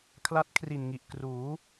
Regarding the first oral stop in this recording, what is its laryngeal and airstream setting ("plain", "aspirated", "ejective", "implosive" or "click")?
aspirated